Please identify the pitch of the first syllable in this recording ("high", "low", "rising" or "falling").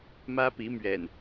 high